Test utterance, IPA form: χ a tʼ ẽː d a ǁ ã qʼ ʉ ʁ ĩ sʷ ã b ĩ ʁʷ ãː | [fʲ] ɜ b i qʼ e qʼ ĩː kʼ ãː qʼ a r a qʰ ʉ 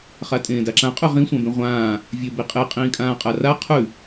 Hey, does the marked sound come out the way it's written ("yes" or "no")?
no